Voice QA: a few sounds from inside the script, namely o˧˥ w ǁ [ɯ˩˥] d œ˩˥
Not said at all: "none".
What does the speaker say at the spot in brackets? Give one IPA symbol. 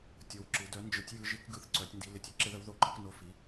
ɯ˩˥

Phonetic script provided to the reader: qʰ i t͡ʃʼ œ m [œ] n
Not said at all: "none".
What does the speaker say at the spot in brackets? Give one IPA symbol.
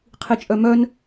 œ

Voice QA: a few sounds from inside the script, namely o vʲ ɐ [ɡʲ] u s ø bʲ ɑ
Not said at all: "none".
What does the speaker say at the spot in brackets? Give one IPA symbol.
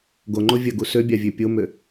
ɡ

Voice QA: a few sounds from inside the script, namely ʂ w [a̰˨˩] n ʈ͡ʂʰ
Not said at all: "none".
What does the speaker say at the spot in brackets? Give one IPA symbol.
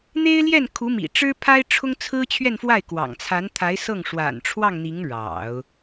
a̰˨˩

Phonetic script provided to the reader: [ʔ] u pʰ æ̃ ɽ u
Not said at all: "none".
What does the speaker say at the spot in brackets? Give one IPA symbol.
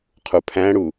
qʰ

